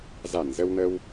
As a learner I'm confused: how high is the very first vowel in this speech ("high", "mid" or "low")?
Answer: low